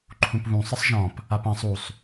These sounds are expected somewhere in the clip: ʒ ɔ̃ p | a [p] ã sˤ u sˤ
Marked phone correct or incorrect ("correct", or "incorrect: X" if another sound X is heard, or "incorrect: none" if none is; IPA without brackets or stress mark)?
correct